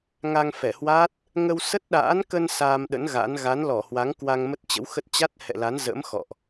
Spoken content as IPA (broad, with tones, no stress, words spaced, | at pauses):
ŋa˧ŋfɛ˧˩hwa˦˥t̚ | ŋə˧wsə˦˥t̚ɗa̰ː˧˥nkə˧n saː˧mɗə̰˧˥n ɣa̰˧˥n ɣa˨˦nlɔ˧˩hwa˨˦ŋ kwa˧ŋmə˦˥t̚t͡ɕə̰˧˥wxə˦˥t̚ t͡ɕa˦˥t̚hɛ̰˧˨la˨˦nzə̰˧˥m xɔ̰˧˨ʔ